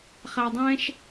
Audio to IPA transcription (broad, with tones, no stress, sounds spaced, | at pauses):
χ æ˨ dˤ ɛ̃˦ ʃ